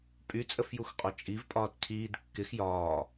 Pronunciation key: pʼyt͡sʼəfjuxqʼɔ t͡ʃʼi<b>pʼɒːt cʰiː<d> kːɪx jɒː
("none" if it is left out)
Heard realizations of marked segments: v, d

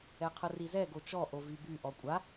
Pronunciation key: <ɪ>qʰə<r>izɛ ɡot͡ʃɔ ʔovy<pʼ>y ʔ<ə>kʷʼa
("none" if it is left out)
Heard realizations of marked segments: ɛ, r, b, ɔ

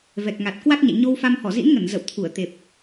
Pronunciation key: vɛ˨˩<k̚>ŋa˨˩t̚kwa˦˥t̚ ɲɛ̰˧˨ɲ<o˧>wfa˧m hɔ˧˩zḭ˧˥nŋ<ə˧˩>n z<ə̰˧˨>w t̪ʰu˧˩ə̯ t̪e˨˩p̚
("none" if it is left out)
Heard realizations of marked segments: k̚, o˧, ə˧˩, ə̰˧˨

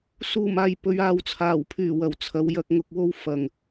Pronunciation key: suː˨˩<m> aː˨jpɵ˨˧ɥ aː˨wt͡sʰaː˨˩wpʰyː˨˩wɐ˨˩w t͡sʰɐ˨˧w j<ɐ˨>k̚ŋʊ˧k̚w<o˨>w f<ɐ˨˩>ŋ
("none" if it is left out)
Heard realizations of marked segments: m, ɐ˧, o˥, ɐ˨

